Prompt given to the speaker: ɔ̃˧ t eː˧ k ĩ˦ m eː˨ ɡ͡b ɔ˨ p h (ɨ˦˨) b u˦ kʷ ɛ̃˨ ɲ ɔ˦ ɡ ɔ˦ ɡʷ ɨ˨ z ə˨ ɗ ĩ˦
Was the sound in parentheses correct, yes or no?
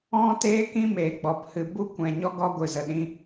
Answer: no